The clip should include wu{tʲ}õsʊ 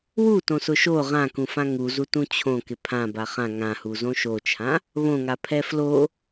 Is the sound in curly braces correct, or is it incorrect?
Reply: incorrect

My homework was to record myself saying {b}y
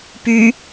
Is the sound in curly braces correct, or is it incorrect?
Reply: incorrect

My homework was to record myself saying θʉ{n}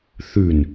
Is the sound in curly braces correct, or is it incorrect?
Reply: correct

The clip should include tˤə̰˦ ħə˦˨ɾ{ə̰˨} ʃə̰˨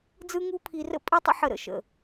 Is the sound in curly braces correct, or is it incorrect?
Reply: incorrect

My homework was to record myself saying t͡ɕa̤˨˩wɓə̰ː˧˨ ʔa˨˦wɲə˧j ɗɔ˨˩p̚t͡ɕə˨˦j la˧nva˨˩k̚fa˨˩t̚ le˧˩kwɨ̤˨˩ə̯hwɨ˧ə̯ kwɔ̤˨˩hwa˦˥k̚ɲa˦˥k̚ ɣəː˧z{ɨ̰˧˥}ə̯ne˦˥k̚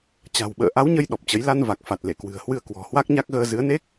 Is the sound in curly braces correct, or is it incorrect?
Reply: incorrect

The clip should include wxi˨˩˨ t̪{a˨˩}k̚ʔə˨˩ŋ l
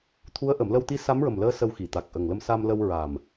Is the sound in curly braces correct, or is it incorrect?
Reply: correct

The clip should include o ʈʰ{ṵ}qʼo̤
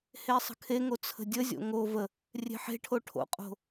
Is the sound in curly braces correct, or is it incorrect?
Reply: incorrect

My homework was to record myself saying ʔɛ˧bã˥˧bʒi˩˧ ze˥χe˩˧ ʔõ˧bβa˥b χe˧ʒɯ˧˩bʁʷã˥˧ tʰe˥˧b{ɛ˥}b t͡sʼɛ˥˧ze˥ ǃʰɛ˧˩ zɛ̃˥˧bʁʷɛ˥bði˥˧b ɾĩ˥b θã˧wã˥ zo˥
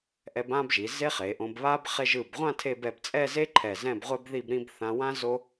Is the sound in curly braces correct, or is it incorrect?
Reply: incorrect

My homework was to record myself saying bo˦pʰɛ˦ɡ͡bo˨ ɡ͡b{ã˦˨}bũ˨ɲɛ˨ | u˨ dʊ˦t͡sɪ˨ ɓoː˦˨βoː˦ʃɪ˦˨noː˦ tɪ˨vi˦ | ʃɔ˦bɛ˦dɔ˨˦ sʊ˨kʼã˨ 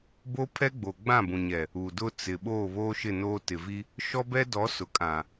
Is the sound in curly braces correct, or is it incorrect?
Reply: correct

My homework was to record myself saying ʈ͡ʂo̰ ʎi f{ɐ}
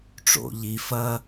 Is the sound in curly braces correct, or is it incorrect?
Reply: correct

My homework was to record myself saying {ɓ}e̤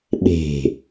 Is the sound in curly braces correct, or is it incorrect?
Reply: correct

